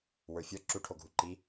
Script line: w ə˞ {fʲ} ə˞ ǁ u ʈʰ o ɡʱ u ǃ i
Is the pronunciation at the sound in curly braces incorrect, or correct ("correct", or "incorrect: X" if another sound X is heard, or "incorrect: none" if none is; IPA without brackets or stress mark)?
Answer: correct